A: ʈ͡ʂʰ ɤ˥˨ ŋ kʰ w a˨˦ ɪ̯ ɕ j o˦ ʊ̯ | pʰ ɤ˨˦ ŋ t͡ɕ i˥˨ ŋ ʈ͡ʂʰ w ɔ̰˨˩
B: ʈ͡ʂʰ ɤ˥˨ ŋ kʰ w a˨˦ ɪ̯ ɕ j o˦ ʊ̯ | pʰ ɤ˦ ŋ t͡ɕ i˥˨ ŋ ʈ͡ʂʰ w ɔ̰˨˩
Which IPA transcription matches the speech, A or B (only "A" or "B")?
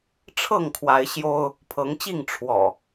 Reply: A